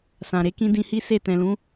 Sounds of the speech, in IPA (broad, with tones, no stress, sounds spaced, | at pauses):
s ã˨ ɾ e˧ k ĩ˧ d ĩ˧ h i˦ s e˦˨ t ɛ̃˨ l ũ˨˦